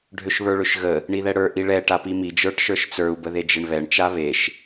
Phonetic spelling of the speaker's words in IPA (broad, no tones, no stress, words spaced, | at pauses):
ɖʱøʃβə˞ɭøʃɣə | ɳiðɛɽə˞ ʔiɭɛ ʈapimi d͡ʒə˞ʈʃə˞ʃt͡sə˞u̯ bəðed͡ʒeɳβɛɳ t͡ʃaβeʃ